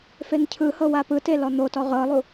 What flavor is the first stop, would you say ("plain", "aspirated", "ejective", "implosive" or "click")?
aspirated